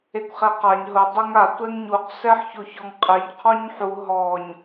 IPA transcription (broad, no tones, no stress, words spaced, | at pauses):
ekʷχɛqaɲ ɦʊ dˤeŋa tʷɛŋɲuq sɛħçoçɔŋqʼeɲ qʰɔɲħu ɦɔɲ